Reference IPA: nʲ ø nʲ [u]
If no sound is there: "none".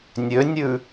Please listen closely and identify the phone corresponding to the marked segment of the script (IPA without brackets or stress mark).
ʉ